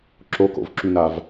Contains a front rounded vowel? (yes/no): yes